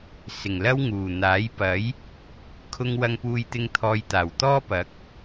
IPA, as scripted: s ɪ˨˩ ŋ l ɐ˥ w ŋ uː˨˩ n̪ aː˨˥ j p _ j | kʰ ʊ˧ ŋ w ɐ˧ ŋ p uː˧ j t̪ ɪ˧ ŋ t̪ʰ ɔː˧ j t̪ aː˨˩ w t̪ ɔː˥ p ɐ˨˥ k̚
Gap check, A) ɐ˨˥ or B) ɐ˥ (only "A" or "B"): A